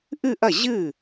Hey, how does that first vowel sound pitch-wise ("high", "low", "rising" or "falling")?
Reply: falling